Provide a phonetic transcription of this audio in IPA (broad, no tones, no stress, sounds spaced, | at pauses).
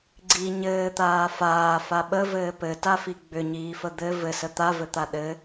ɡ͡ǀ i ɲ ɘː t̪ aː f aː f a ɓ ə v ɘː p ɘ t a f i ɡ͡b ʏ ɲ iː f ə d̪ ɘ v ɘ s ə t̪ a v ɘ t̪ a ɗ ɘ